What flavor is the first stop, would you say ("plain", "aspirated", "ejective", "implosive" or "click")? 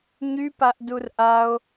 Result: plain